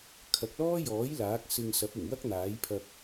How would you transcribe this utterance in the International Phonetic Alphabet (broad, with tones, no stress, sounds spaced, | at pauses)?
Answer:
kʰ ɐ˨ k̚ l ɔː˥ j ɔː˨˥ j l aː˨˥ k̚ s ɪ˧ ŋ s ɐ˨˥ p̚ ɪ˨˩ ŋ w ɐ˥ k̚ n̪ aː˨˥ j pʰ ɐ˧ k̚